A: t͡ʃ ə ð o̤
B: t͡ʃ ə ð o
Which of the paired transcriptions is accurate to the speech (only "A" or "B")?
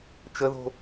A